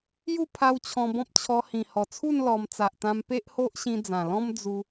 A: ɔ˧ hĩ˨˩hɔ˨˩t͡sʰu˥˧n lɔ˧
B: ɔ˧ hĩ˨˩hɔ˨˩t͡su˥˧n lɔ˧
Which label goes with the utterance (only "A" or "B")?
A